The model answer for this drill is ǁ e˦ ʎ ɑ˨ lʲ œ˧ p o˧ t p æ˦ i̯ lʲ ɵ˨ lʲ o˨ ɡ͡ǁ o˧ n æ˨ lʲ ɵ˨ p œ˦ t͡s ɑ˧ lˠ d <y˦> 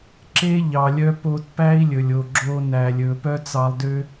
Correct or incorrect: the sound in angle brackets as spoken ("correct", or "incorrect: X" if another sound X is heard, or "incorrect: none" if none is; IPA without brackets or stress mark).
incorrect: ø˦